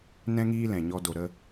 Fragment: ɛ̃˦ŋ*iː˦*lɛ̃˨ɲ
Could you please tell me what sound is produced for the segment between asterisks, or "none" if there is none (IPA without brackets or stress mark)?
iː˦